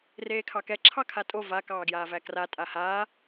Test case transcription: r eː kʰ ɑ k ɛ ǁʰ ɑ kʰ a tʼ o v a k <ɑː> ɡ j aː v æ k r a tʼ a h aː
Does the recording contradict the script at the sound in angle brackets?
no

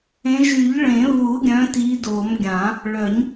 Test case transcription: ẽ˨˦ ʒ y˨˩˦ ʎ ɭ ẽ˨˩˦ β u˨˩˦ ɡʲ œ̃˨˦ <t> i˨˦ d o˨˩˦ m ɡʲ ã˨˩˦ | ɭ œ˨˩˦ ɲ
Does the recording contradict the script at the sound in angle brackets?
no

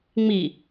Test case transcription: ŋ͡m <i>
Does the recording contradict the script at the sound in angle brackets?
no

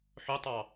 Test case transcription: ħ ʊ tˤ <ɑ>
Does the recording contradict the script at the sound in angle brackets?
no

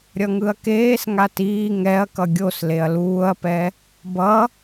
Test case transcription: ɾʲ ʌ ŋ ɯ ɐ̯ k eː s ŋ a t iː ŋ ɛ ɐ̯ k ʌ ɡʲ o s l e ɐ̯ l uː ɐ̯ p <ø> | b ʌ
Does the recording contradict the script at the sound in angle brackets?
yes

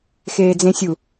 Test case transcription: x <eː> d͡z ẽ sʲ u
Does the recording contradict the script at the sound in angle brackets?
no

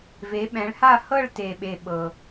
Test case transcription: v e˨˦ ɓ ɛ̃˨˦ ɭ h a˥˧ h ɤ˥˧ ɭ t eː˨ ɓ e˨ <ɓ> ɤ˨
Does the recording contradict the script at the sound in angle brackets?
no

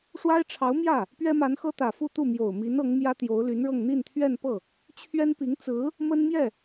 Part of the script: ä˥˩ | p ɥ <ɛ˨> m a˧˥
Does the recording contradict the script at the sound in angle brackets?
yes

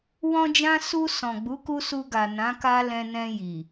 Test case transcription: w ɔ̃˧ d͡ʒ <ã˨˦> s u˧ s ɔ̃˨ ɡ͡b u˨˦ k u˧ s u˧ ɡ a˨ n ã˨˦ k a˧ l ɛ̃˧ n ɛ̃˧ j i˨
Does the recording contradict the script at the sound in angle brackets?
yes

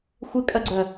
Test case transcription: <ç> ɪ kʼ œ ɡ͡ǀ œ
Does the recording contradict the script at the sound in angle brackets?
yes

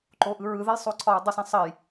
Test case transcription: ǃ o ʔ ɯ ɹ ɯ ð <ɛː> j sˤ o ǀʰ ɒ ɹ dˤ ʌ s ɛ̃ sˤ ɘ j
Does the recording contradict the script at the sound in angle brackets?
yes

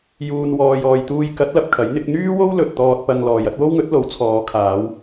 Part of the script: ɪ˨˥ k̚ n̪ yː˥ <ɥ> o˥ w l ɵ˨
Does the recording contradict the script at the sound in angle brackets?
yes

